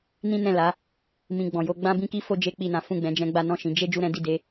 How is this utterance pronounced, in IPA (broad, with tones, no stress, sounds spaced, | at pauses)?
n ĩ˦ n ɛ̃˦˨ l a˨˦ | m ĩ˧ ɡ͡b ɔ̃˨ j o˧ ɡ͡b ã˦ b ĩ˦ k i˦ f o˦ d͡ʒ e˦ k͡p i˦˨ n ã˨˦ f ũ˦˨ ɡ͡b ɛ̃˨˦ d͡ʒ ɛ̃˧ ɡ͡b a˦ n ɔ̃˦˨ ʃ ĩ˨˦ d͡ʒ e˦ d͡ʒ u˦ ɾ ɛ̃˦ d i˦˨ d e˨˦